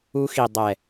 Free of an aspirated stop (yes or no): yes